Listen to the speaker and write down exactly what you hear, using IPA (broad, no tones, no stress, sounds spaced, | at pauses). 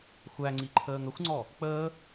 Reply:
xʷ æ ŋ͡ǀ i ǃʰ əː ŋ ə xʷ ŋ͡ǀ ɔ | k͡p əː